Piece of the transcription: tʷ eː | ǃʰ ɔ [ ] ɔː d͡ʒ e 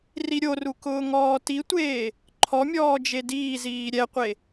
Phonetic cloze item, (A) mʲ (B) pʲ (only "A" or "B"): A